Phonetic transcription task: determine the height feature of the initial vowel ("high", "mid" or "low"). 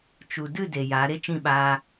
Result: high